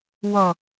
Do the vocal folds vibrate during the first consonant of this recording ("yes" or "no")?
yes